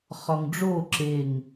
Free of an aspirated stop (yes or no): yes